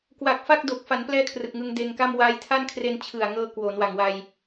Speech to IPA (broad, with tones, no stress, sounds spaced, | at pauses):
k w a˨˩ k̚ f a˥˩ k̚ d o˨˩ k̚ f a˩˦ n p l ɛː˧ kʰ r ɯ˨˩ k̚ ŋ ɯ˧ ŋ d eː˧ ŋ k a˥˩ m w aː˧ j tʰ a˥˩ n kʰ r e˧ n t͡ɕʰ ɯ˨˩ a̯ ŋ ɤː˧ k w oː˩˦ n w a˨˩ ŋ w a˧ j